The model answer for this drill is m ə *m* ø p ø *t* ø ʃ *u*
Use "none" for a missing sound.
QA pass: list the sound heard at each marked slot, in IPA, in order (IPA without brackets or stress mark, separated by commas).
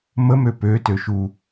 m, t, u